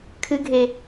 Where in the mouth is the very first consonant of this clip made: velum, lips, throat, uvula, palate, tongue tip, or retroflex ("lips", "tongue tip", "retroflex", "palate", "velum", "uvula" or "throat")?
velum